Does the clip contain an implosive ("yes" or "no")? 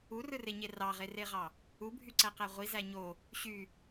no